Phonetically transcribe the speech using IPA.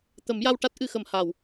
t̪ ə˨˩˦ m j a˧ w ʈ a˦˥ t̚ ʔ ɨ˨˩˨ x ə˨˩˨ m h a˨˩˨ w

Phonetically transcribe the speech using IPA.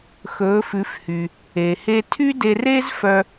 x ɵː˩˥ f ʉ˩˥ f h y˩ | e˩ h e˧ tʰ y˥ d e˧ r e˥ z f œ˧

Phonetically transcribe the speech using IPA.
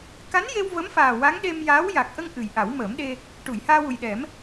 k a˧˥ n j e˧ w v ə˧˥ m f aː˨˩ w a˧˥ ŋ ɗ e˧ m j aː˧˥ w j a˨˩ k̚ ʔ ə˧ ŋ ʔ ɨ˨˩ j ʔ a˨˩˦ w m əː˨˩˦ m ɗ e˧ | ʈ u˨˩˨ j h aː˧ w u˨˩ j ɗ ɛ˨˩˦ m

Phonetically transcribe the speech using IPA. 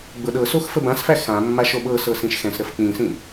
ɡ͡b ɤ ɗ ɤ s o x f ə b ã s f æ x ã mː a ʃ o ɓ ɤ s ɤ s ĩ ʃ x ɛ̃ s ɾ ə f k͡p ĩ s ĩ

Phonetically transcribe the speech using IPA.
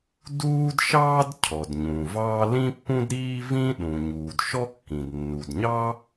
d uː˥ d ʃ ɑː˥ d cʰ ɔ˩ d ɲ ũ˩ v ɑː˥ l ĩ˥ pː ũ˥ d ɾ iː˥ v ĩ˥ ɗ ũ˩ ɲ uː˩ d ʃ ɔ˥ kː ĩ˩ d nː u˩ d ɲ ɑ˥

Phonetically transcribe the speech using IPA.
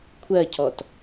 kʷʰ ɜ cʰ ɔ t

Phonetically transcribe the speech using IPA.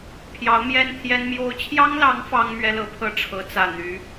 pʰ j ɑ˧˥ ʊ̯ m j ɛ˥ n t̪ʰ j ɛ˥ n m j o˥ ʊ̯ t͡ɕʰ j ɑ˥ ŋ l ɑ˧˥ ŋ f ɑ˥ ŋ m ɥ ɛ˥ l ɤ˧˥ pʰ ɤ˥˩ ʈ͡ʂʰ ɤ˧˥ t͡s ä˨˩ n̪ y˧˥

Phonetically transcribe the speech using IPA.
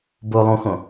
b o lˠ ũ x õ

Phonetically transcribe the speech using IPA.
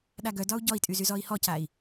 ɗ a ɡ œ d ɒ u̯ ɟ ɔ i̯ tʼ y z y z ɔ i̯ h ɔ c a i̯

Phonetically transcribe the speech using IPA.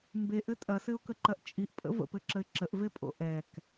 m b e ʔ ɘ tʼ ɐ s ɘ ʊ̯ k ə ǃ ɐ ʔ t͡ʃʼ i ʔ pʼ ə̰ v ə̰ p ɘ ǁ ə ɪ̯ ǁ ə ʔ v e pʼ o̰ ʔ ɛ k

